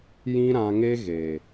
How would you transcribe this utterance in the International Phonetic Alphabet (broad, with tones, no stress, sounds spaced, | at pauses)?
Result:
j ĩ˦ ɾ ã˧ ŋ e˦ ɣ e˨